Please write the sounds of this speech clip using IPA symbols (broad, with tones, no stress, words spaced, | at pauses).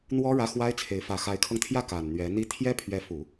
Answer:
n̪wɔ˥ ɻä˥ xwa˥ɪ̯t͡sʰe˧˥ɪ̯ fä˨˩xa˧˥ɪ̯kʰɤ˧ŋt̪ʰjä˥ ka˨˩nn̪ɥɛ˧˥n̪i˥ t̪ʰjɛ˥pʰɥɛ˧˥ fu˨˩˦